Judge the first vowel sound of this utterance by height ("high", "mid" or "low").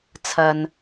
low